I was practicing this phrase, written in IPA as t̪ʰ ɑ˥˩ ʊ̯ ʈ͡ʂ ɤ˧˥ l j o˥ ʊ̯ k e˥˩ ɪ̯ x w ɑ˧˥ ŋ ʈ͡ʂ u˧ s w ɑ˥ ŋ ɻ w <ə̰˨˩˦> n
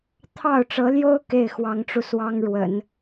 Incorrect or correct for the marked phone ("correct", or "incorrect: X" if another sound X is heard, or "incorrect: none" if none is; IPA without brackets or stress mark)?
correct